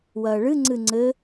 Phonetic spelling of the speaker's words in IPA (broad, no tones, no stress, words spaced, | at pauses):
wɐːɭɨŋ͡ǀɨ ŋ͡ǀɘ